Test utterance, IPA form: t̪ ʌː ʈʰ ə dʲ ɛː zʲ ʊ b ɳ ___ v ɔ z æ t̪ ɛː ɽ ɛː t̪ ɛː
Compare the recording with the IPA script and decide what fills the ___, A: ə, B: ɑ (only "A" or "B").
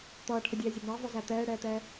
B